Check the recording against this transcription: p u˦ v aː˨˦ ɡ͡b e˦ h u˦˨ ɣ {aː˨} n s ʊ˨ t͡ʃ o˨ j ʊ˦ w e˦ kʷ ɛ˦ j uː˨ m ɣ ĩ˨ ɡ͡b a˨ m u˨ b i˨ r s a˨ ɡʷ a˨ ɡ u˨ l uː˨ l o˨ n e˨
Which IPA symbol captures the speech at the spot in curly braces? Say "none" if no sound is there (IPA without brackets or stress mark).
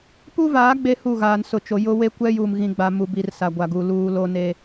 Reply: aː˨